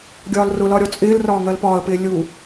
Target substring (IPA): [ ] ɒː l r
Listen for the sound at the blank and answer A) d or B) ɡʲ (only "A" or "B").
B